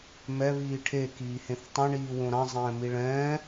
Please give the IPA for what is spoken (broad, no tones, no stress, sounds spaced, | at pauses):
m ɛ β iː ʈʰ e k iː h ẽ θ tˤ õ ɳ iː w õ ɾ ɑ̃ zˤ ɛ̃ː m i ɭ ɛ̃ː